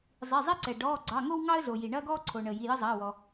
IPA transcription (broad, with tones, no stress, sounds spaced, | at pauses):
zˤ i˩˧˩ zˤ ɛ˦ ǀ ɛ˩ ɖ ɔː˩˧˩ ɡ͡ǀ ɑ˩˧˩ ŋ o˦ w ŋ ɑ˦ ə̯ z o˩ j i˩ ɳ ɐː˦ ɡ ɔː˦ ǀʰ o˩ ɳ əː˩ j i˩˧˩ j ə˦ zˤ ɐː˩˧˩ w ɔ˩